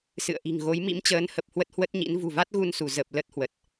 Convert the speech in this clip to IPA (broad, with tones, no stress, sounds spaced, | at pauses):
s ɨ̰˧˨ ə̯ ʔ i̤˨˩ ŋ ɣ o˨˦ j m ḭ˧˥ m t͡ɕ əː˨˦ n h ə˨˩ p̚ h w ə˦˥ t̚ h w ə˦˥ t̚ ɲ ḭ˧˥ n v ṳ˨˩ v a˦˥ t̚ ɣ u˧ n s u˧˩ z ə˨˩ p̚ l ə˦˥ t̚ h w ə˨˩ t̚